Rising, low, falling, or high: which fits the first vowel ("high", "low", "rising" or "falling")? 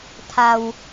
low